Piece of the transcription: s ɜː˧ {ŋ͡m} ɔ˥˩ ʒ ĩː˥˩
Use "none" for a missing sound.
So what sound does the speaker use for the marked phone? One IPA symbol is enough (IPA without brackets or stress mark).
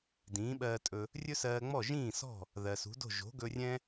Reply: ŋ͡m